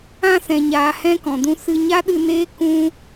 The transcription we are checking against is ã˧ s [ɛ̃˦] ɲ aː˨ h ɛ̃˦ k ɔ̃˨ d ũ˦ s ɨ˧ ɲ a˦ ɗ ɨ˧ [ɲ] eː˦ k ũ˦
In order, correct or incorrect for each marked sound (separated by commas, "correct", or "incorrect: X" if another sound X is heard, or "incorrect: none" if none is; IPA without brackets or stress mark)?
incorrect: ɛ̃˨, incorrect: n